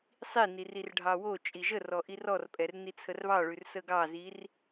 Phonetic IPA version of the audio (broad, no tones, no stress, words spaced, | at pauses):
sˤinir irɖʱɑwot͡ʃʼi ʒərɔ ʔirɔrpʼɛr nit͡sʰərβɑɭʉr səɡɑzir